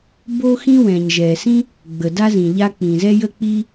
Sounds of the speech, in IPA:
b o˥ x ĩ˥ w ɛ̃˩ ɲ ʒ ɛ˩ s ĩ˥ | ɡ͡b ə˩ d a˥ z ĩ˩ ʎ a˥ k͡p ĩ˩ z ɛ˥ j ə˥ k͡p i˥

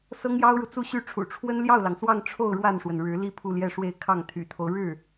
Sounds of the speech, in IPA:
s ɤ˥ ŋ j ɑ˥ ʊ̯ ɻ u˨ t͡s u˥˧ ɕ y˥˩ ʈ͡ʂʰ ṵ˨˩ ʈ͡ʂʰ w ə˥ n l j ɑ˥˩ ʊ̯ l ɑ˩ ŋ s w ɑ˥˧ ŋ ʈ͡ʂʰ o˥˧ ʊ̯ ɻ w a˥˩ n ʂ w ə˩ n ɻ ɻ̩˧˥ l i˥˧ pʰ u˥˧ l j ɛ˥˧ ʂ w e˥˧ ɪ̯ kʰ ɑ˥˩ ŋ t̪ʰ y̰˨˩ t̪ʰ o˦ ʊ̯ ɻ ɻ̩˥˩

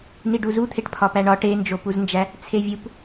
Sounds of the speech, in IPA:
n i ɖ u z u t̪ʰ e ʈ pʰ ɒ p æ ɳ ɒ ʈ e n d͡ʒ o p u z n d͡ʒ æ | t͡sʰ e vʲ u p

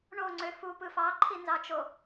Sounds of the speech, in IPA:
ɳ o ŋ͡ǀ ø f u p ɯ f ɑ ǃʰ i n z ɑ t͡ʃ o

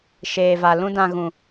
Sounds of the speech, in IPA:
ʃ eː˨ v a˨ l ũ˧ d ã˨ ɣ ũ˨

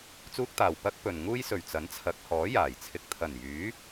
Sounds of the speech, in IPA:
t͡s uː˥ k̚ t̪ aː˨˩ w p ɐ˥ k̚ p ɵ˨ n ŋ uː˥ j s ɵ˨˩ ɥ t͡s ɐ˨˥ n t͡sʰ ɐ˨˥ k̚ h ɔː˨˥ j aː˨˩ j t͡sʰ ɪ˧ k̚ t̪ʰ ɐ˨˩ n j yː˨˥

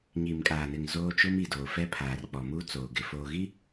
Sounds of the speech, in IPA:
ɲ iː˨ m kʼ aː˨ n ɪ˨ ŋ z oː˦ t͡ʃ ʊ˦ m i˨ d oː˨ f ɛ˦ pʰ aː˨ r k͡p ɔ˨ m uː˦ t͡s oː˨ ɡ ɪ˨ f oː˨ ɣ i˦

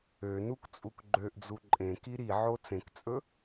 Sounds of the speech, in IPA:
ø n u k t͡sʼ u k ɡ͡ǃ ø ʔ d͡z u ǃʼ ẽ k i ɾ i ʕ o t͡s ẽ k t͡sʼ ɵ

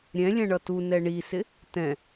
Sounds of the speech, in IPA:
ɾʲ ɛ̃ lʲ ɛ̃ ɳ ʌ t u n ɛ ɳ i s ɪ | t ɛ̃

